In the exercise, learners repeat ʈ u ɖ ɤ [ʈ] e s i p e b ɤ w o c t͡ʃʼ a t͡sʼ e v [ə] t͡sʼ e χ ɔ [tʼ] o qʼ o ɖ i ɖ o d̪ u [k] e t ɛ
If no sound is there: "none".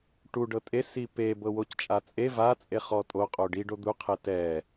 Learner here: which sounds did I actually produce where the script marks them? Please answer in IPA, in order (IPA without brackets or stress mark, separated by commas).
tʼ, a, tʼ, qʰ